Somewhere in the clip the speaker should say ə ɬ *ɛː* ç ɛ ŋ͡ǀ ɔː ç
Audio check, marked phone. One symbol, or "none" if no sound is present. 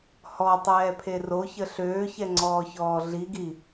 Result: øː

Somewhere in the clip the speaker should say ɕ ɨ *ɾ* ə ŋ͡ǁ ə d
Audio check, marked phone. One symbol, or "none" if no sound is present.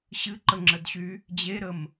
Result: ǃ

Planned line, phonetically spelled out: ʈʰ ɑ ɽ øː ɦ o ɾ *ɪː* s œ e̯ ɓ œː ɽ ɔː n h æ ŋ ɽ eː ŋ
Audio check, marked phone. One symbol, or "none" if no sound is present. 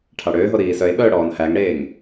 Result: iː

